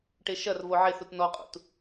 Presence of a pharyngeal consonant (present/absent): present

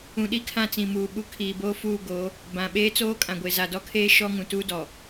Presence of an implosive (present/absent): present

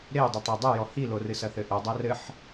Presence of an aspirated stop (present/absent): absent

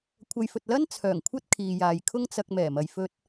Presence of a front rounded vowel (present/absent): present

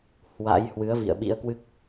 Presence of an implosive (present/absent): present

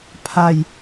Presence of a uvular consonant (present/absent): absent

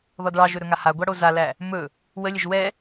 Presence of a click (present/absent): absent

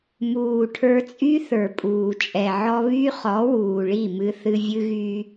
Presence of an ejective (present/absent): present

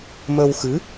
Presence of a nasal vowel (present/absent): absent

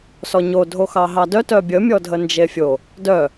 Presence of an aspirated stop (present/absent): absent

